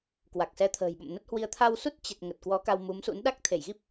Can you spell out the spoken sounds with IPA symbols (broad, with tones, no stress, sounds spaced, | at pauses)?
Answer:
k w a˨˩ k̚ s ɛ˧ t̪ʰ ə̤ː˨˩ j ɓ ə̰˧˨ m n ə˦˥ t̚ h w i˧ ə̯ t̪ʰ a˧ w s u˦˥ t̚ t͡ɕ ə˨˩ t̚ ŋ ə˨˩ t̚ k w ɔ˨˦ k a˧ w m u˨˦ m s ṵ˧˥ n ɗ a˦˥ k̚ t̪ʰ e˧˩ j ɣ i˦˥ p̚